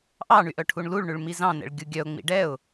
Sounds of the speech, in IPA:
ʔɑɳy ʔœʈʰuɳluɭɳʉɭ mizɑ̃nɛ̰ɭ ɡʲuɡʲœʊ̯ŋ͡mḭ ɖɛʊ̯

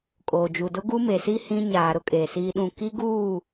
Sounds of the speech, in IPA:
kʼoː˨d͡ʒu˨ dʊ˦ɡu˦me˨si˦ hĩ˦ɲaː˨ ɾʊ˦kʼe˨siː˦ɗũ˦˨ ki˦ɡuː˦˨

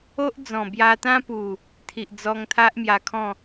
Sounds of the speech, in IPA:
o˦ʔd͡zɔ̃˨˩ bja˧t̪ã˦pu˨˩ | t̪ʰi˨ʔd͡zɔ˧ŋ t̪ʰa˦ʔmja˧kʰɔ̃˥˧

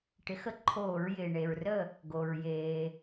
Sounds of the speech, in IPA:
ʈɪ˨˥xə˦˥ ǃʰoː˧˩˧ɹjɪː˩ ɳe˩ɹrə˥˩ | ɡo˩ɹ jeː˩

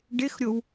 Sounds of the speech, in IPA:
ɖɪxɾʲow

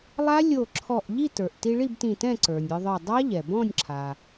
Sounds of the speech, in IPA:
lˠa˦˥lʲo˧˩ ǁʰɔ˧˩ʔ ʎi˥˨tə˞˩ʔ ti˧ɭi˥˨btĩ˧˩tɛ̃˥˨ ǀə˞˩nʲə˞˧ðˤə˞˧˩ dˤa˦˥ʎɛ˩ bɔ̃˥˨nʲ ǁʰa˩

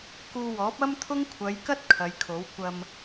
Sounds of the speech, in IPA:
kuː˧wɔː˨˥p̚ ɐ˥mt̪ʰʊ˥ŋkʷʰɐ˨˧jkɐ˥t̚ kʰɐ˨˧jkʰo˨˥w kʷɐ˧m

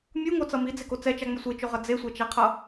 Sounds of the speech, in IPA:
mʲuŋot͡sʌ mid͡zeko t͡sɛt͡ʃaŋ͡mo sʷet͡ʃoʁʌ d͡zesʷɛt͡ʃaqʰʌ

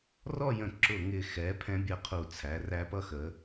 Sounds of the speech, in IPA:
rɔ˥˧jə̃˧˩ ǁʊ˧˩ŋɪ˧˩xɛ˩˧ pʰɛ̃˧bʲə˧˩ qʰu˧˩ t͡sʰæ˩˧ræ˧ pʌ˥˧xə˩˧

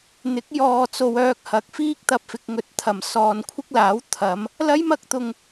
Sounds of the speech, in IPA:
n̪ɪ˨˥k̚ jɔː˨t͡so˨w œː˧k̚hɐ˨˥k̚fiː˥k̚t̪ɐ˧p̚ fɪ˨k̚ŋɵ˨˥t̚ t̪ʰɐ˨˩msɔː˨nkʷʰɪ˥k̚laː˨˥w t̪ʰɐ˨˧m | lɐ˥jmɐ˥k̚t̪ʊ˨ŋ

